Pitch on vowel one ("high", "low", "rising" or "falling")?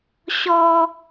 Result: high